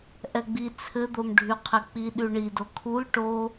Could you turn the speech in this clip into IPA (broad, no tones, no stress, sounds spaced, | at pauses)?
ʔ ɛ ɡ͡b i t͡sʰ ɘ d̪ o m ɖʱ y qʰ ɛ k͡p i ɗ y ɳ i d o kʰ u l ʈ o